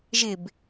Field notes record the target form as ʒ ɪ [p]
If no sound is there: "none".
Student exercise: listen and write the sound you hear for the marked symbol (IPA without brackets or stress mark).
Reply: b